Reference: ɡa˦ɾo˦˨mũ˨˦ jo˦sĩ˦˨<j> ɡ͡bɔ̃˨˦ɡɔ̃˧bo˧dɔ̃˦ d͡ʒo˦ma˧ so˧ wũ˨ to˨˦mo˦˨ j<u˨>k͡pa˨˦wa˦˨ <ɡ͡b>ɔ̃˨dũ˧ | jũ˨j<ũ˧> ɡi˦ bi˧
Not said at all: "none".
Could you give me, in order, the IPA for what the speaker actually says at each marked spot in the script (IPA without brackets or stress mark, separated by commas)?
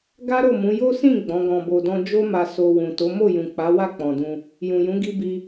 none, ũ˨, k͡p, ũ˨˦